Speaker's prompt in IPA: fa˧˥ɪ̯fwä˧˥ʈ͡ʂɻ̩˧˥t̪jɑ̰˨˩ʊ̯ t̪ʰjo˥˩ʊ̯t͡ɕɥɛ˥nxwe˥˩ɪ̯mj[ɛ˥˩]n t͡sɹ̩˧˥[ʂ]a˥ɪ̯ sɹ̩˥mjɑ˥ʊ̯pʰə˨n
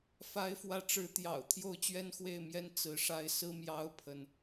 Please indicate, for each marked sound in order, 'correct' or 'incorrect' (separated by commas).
incorrect, correct